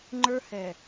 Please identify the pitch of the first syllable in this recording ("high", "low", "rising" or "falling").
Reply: high